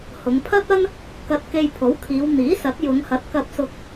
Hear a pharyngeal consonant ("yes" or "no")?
no